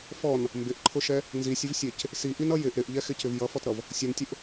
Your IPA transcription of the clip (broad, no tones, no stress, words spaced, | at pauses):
fɔn | mbɪʔǃʰʊʃɛ | nzisʲɪvsʲɛc | siʔinʌ jɪʔ ɾɪʔʎɛxɪcɪv jʌfɔtɾʌv | sʲʊntʲʊʔ